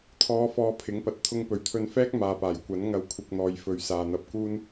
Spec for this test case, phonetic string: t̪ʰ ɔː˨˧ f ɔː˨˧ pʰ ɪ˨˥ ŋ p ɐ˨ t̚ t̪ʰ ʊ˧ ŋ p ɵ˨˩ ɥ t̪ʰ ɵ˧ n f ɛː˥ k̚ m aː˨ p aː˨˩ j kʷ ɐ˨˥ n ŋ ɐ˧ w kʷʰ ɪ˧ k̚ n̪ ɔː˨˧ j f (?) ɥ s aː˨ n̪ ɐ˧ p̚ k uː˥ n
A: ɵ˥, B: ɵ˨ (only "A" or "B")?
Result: B